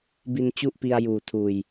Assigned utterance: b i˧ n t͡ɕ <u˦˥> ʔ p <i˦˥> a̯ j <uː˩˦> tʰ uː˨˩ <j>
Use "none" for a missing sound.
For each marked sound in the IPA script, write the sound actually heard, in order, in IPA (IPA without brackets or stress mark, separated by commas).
u˦˥, i˧, uː˨˩, j